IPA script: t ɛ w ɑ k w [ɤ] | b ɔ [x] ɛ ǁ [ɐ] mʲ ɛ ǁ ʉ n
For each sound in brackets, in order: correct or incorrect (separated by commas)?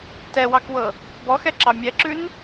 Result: correct, correct, incorrect